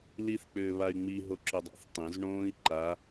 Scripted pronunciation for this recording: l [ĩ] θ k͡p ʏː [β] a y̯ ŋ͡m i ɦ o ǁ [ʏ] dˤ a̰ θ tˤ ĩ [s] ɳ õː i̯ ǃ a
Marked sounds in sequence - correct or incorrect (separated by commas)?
incorrect, correct, correct, incorrect